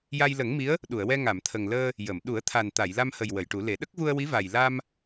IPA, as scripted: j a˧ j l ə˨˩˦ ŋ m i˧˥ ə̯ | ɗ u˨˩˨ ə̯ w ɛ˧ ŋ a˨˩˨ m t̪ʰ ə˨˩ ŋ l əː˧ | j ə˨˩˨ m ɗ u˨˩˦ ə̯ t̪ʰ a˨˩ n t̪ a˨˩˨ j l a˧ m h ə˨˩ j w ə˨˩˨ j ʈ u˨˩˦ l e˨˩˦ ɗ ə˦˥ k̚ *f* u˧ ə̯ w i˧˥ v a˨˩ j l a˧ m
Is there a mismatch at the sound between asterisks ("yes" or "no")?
yes